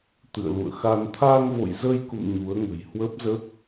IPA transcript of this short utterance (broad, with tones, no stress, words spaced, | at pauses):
t̪ɨ̰˧˨ə̯lṵ˧˨ə̯xa˧n t̪ʰa˧ŋvo̰˧˨jzə˧jkṵ˧˨m ɲu˨˦ə̯ŋə̤˨˩j hwə˦˥p̚zə˦˥p̚